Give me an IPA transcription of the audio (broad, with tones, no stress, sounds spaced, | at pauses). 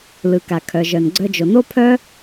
l ɯ˩ k a˩ kʰ œ˩ ʒ œ˩ n ɡ͡ǀ œ˧ d͡ʒ o˩ n o˥ pʰ œ˥